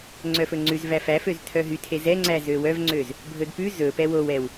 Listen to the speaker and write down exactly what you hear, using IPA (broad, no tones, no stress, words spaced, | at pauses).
ŋ͡ǀœfɵŋ͡ǀʉz væfæføz tʰœɦytʰe zɛŋ͡ǀæ zøwœvŋ͡ǀøz | bʱɵdpʉ zɵpɛ wowɛw